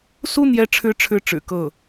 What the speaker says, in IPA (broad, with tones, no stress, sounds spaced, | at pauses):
s u˥ n̪ j ɛ˧˥ ʈ͡ʂʰ ɻ̩˧˥ ʈ͡ʂʰ ɻ̩˥˩ ʈ͡ʂ ɻ̩˨˩ k ɤ˥˩